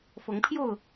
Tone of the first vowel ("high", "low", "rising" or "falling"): rising